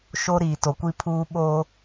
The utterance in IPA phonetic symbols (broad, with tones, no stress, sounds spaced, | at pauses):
ʃ o˦ ɾ iː˨ t o˨ kʷ i˦ pʰ uː˦ ɓ oː˦